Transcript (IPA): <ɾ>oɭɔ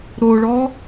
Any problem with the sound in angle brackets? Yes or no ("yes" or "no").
no